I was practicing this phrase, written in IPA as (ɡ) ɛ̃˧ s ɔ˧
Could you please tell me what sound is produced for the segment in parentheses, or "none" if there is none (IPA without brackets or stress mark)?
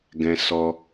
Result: ɡ